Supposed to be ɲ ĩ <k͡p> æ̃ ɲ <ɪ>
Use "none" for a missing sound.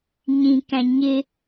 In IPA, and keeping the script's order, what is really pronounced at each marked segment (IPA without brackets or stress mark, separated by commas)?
k, ɪ